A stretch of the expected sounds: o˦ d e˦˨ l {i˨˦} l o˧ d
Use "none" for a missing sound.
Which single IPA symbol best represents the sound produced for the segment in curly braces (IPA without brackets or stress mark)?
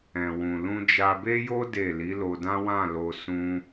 i˨˦